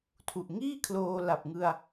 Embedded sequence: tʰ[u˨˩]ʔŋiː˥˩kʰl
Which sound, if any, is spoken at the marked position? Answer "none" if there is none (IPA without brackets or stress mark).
u˨˩